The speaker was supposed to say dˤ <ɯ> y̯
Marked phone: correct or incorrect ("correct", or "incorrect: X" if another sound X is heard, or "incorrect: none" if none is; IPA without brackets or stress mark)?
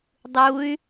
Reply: incorrect: u